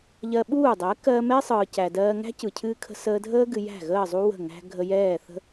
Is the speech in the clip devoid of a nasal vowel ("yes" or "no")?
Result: yes